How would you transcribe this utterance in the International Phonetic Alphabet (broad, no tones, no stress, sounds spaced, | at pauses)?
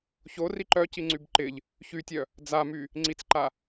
ç o r i ǃ œ c i ŋ͡ǀ y b ǃ ɪ ʎ | ç y tʲ œ | d͡z a m y | ŋ͡ǀ i t͡s ǃ a